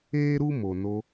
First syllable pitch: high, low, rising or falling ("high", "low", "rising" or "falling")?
high